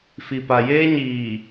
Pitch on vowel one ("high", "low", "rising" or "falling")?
low